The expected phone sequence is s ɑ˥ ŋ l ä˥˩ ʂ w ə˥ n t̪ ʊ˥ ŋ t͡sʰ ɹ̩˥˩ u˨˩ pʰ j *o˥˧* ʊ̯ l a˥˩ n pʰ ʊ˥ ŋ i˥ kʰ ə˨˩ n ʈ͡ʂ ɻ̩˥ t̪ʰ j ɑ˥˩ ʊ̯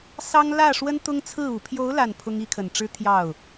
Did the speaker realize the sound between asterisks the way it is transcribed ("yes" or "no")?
no